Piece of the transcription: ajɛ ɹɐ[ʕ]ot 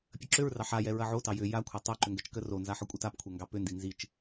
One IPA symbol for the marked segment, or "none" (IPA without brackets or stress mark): ʕ